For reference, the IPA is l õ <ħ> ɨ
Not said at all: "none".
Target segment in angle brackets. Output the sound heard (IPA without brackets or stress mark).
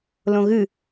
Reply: ɣ